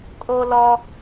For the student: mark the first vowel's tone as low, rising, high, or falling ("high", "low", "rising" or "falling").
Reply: high